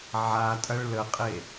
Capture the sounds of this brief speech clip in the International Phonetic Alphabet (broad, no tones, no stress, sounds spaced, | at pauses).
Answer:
ʕ a tʼ ɐ ɭ l ə qʼ e